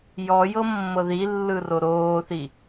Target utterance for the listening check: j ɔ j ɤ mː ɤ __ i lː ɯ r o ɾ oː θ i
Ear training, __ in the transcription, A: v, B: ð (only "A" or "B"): B